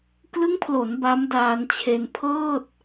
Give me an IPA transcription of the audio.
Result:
k l ɯ˦˥ ŋ pʰ l o˩˦ n b a˦˥ m d aː˧ n t͡ɕʰ e˧ n pʰ ɤː˥˩ t̚

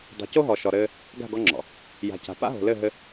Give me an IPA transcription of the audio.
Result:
dˤ o̤˨ c o˦ ɦ ɔ˨ ʃ ɔ˨ ɾ ɘː˧ | ɡ a̤˦˨ ɡ ɔ˧ ŋ͡ǁ ɔ̰˨ | j a̤˨ c a̤˨ p a̰˦ ɦ o̤˨ l ɘ˦˨ ɦ ɘ˧

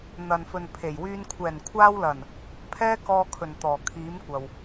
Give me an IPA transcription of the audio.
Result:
n̪ ɐ˨ n f ɵ˨ n pʰ e˨˩ j w yː˧ n kʷʰ ɛː˨˩ n kʷʰ aː˧ w l ɐ˨˩ n | pʰ ɛː˥ k ɔː˧ kʰ ɵ˨˩ n t̪ ɔː˨˩ kʰ iː˨˥ m kʷ ɐ˨ w

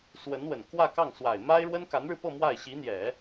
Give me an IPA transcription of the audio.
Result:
s w ə˧˥ n w ə˨˩ n k w ä˥˧ k ɑ˥˩ ŋ s w a˨˩ ɪ̯ m a˥ ɪ̯ ɻ w ə˥ n k a˧˥ n ɻ ɻ̩˧ p ɤ˥˧ m w a˥˩ ɪ̯ ɕ i˧˥ n̪ j ɛ˨˩˦

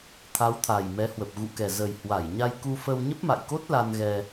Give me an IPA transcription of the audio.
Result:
t̪ʰ a˨˦ w t̪ʰ a˨˩ j m ɛ˨˦ h w ə˨˩ p̚ ɣ ṵ˧˨ k ɛ˨˩ z ə˨˩ j h w a˧˩ j ɲ a˧ j k u˧ f ə˧ w ɲ ə˦˥ p̚ m a̰˧˨ j k o˦˥ t̚ l a˧ n ɣ ɛ˧

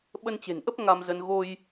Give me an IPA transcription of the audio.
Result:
ɓ ə˧ n t͡ɕ e̤˨˩ n ʔ ə˦˥ p̚ ŋ a˧ m z ə˧ n ɣ o˧ j

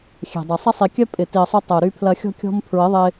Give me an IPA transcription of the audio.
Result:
xʲ ɛ̤˨ dˤ ɐ˨ sˤ ɐ˧ sˤ i˨ kʲ œ˧ pʼ ɪ˨ t i˨ ə̯ sˤ u˧ tˤ œ˨ ʊ̯ ɾ y˧ pʰ l ɐ˧ xʲ ɔ̤˧ kʲ ɔ̤˧ m pʰ ɹ ɪ˨˦ ðˤ ɪ˧

